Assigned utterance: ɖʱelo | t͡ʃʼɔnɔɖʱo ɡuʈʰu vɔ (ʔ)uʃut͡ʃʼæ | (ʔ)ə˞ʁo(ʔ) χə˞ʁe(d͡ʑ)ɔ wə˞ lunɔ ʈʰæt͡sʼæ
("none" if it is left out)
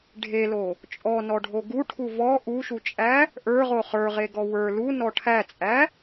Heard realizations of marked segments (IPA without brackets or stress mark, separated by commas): ʔ, ʔ, none, ɡ